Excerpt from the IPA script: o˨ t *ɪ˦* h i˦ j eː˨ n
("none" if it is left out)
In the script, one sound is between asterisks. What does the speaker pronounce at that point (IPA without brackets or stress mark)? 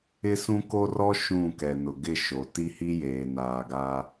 i˦